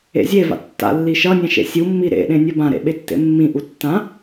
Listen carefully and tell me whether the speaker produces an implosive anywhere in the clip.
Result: yes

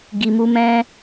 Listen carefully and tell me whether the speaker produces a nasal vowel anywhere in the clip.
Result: yes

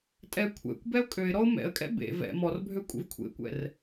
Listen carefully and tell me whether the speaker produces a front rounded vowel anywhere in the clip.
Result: yes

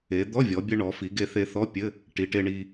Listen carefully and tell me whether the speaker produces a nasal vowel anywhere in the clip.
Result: no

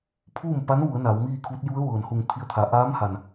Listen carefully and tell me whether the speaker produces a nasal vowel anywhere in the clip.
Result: no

